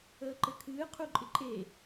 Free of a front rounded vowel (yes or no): yes